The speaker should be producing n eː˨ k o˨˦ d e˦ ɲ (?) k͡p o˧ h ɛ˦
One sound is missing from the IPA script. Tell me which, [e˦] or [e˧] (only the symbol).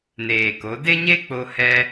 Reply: e˦